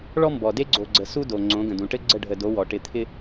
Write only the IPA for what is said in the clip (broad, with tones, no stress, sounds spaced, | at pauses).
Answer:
ɭ ɔ˦ m b ɔ˨ d e˦ ɡ͡ǀ o˨ ɡ͡ǀ ə˨ s u˦ d o˨ ŋ͡ǀ õ˨˦ ɡ ə̃˨ d ũ˨ ʈ ɘ˦ ɡ͡ǀ ə˦˨ ɖʱ ə˨ d o˨˦ w ɔ˨ ʈ ɪ˦˨ t̪ʰ ɪ˦